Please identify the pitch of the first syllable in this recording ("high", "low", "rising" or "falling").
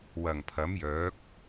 low